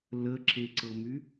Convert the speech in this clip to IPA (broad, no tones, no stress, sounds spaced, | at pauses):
l ə ǁ e ǀ ɤ m y